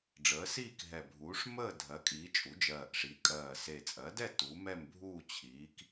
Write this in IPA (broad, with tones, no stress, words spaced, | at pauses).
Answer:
ɖ͡ʐəː˩˥siː˥˨k ɦɛ˨˩bʱuː˩˥ʂ məː˥˨ dʱɜ˩˥kʼiː˩˥ t͡ʃʼu˩˥d͡ʒɜː˨˩ʔʂi˩˥ kʼɜː˨˩se˨˩t͡sʼɜ˩˥dɛ˥˨ tu˩˥mɛ˥˨m bʱuː˥˨t͡ɕʰiː˩˥k